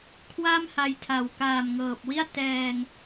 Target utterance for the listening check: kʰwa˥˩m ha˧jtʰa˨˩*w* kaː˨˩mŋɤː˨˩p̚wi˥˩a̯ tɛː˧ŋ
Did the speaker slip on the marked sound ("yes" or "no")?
no